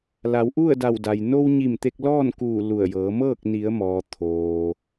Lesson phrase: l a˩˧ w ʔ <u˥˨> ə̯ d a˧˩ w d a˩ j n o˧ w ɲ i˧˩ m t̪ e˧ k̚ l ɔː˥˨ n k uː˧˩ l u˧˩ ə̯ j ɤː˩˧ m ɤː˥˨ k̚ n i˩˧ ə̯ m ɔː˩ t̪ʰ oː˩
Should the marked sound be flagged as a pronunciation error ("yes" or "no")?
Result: no